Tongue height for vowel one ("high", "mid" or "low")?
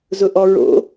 high